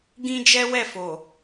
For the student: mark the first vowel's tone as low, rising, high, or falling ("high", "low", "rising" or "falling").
high